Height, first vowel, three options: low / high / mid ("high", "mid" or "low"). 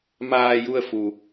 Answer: low